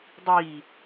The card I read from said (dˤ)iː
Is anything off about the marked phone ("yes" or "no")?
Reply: no